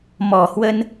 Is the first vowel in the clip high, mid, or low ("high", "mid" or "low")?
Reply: mid